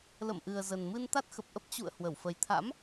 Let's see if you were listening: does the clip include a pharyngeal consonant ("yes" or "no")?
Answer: no